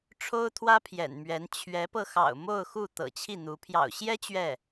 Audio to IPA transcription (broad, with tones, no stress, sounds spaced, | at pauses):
ʈ͡ʂʰ o˥ ʊ̯ t̪ʰ w ä˥ pʰ j ɛ̰˨˩ n m ɥ ɛ˧˥ n t͡ɕʰ ɥ ɛ˧˥ p ɤ˧ x ɑ̰˨˩ ʊ̯ m o˥˧ ʊ̯ x u˥˩ t̪ ɤ̰˨˩ t͡ɕʰ i˥˩ n̪ u˧˥ pʰ j ɑ̰˨˩ ʊ̯ ɕ j ɛ˥ t͡ɕ ɥ ɛ˥˩